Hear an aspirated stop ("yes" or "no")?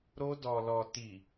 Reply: no